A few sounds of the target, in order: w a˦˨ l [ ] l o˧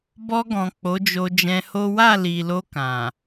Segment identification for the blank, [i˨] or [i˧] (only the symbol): i˨